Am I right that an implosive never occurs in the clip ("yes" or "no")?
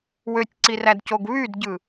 yes